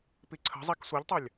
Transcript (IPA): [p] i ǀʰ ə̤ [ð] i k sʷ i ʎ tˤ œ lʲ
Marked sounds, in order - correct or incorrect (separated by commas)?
correct, incorrect